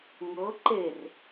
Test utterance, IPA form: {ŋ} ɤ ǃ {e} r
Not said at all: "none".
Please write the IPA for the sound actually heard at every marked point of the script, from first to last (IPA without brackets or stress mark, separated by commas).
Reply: ŋ, e